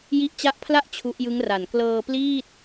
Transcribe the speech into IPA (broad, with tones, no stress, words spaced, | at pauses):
ji˦˥ʔt͡ɕa˦˥ʔpʰla˥˩ʔ t͡ɕʰu˦˥ʔjɯ˦˥ŋra˨˩n klɤː˧ pliː˥˩t̚